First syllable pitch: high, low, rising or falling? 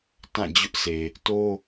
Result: falling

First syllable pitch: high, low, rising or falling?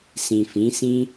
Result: low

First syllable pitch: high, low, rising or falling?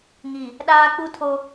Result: low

